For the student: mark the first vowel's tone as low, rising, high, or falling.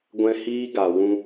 high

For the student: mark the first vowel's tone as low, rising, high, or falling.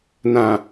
low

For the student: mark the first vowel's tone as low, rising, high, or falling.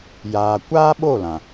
low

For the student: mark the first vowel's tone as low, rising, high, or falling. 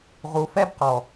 low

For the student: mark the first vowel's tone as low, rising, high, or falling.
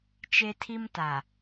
high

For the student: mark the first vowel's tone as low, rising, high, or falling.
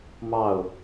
falling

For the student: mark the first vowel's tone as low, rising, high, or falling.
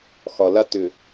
low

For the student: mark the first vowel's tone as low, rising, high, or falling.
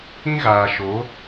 high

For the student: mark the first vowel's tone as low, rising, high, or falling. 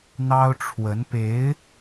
high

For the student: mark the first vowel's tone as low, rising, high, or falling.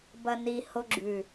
high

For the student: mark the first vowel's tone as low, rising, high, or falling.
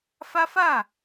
high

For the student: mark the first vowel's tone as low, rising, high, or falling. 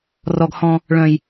low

